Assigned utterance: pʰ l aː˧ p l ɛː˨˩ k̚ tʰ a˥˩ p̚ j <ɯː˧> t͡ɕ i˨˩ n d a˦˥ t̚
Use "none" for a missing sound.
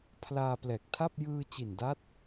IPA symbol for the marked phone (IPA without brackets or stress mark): ɯː˧